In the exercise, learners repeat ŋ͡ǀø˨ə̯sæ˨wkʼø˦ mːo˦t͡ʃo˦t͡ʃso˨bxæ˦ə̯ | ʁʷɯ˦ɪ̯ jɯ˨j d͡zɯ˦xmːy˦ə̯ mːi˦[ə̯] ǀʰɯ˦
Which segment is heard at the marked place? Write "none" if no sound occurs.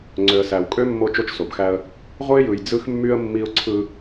ʊ̯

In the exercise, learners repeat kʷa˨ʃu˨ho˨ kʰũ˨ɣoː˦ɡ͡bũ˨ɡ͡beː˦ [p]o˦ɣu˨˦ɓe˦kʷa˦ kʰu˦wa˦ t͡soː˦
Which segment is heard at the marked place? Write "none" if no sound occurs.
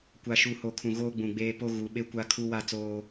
p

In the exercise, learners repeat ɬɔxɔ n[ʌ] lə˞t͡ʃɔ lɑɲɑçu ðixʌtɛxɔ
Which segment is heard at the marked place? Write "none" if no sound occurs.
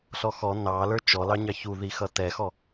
ɑ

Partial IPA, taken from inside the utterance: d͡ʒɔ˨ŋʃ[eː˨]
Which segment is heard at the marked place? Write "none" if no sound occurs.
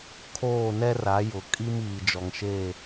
eː˦˨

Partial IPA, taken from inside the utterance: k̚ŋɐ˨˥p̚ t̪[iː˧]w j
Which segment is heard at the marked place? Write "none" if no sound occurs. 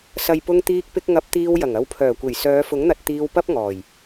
iː˧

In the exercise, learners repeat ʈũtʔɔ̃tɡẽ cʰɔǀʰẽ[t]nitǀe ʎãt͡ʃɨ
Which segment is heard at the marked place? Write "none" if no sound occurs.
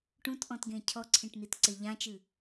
ʈ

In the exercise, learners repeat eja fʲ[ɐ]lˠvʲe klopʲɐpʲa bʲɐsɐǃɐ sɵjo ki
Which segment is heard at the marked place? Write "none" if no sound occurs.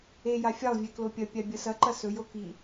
a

